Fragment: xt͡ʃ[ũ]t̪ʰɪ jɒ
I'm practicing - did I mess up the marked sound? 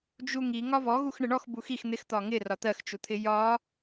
yes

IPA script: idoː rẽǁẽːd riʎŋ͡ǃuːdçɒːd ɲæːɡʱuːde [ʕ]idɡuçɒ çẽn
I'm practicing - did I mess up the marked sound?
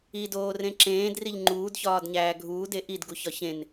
yes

